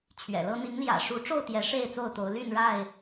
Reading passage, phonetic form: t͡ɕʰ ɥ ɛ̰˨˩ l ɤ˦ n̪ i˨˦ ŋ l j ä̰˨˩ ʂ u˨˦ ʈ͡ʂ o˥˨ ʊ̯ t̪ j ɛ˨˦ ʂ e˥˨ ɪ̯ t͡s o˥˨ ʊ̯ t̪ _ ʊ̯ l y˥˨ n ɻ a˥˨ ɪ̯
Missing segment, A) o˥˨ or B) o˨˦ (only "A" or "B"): B